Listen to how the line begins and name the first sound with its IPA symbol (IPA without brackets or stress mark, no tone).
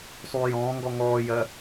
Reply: sˤ